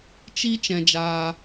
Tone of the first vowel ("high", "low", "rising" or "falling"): high